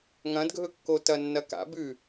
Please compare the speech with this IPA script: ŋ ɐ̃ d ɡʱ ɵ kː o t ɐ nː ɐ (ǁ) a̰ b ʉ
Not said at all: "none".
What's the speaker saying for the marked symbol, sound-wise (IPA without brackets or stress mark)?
k